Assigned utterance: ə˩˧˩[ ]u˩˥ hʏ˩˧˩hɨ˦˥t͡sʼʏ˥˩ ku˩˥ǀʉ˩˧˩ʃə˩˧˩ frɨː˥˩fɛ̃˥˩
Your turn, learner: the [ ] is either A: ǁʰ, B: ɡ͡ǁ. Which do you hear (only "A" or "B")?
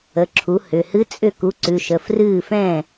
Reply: A